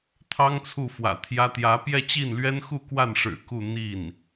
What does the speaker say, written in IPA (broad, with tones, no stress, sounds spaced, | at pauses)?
t̪ʰ ɑ˥ ŋ t͡sʰ u˥˩ f w ä̰˨˩ t̪ʰ j ä˥ t̪ j ä˧˥ p j ɛ˥˧ t͡ɕ i˥˩ n l ɥ ɛ˥ n x u˥˧ k w a˥˩ n ʂ ɻ̩˨˩ k u˥˧ n̪ i˥˩ n